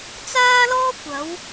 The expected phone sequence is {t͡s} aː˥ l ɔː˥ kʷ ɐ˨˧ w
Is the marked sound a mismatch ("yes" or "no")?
no